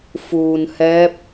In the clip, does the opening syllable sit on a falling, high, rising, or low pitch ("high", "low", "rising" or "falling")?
low